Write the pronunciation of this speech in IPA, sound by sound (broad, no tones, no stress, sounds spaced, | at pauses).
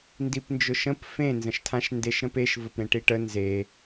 n d i p n d͡ʒ ʊ ʃ ə̃ p f ẽ n z ə̃ ʃ tʰ ã ʃ n d e ʃ ɾ ə̃ p e ʃ v ə p ɾ ẽ ʈ i ʈ ə n z e